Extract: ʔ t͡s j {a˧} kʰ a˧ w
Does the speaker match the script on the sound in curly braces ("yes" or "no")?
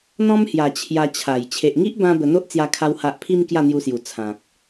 yes